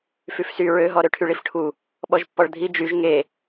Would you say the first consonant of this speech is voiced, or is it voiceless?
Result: voiceless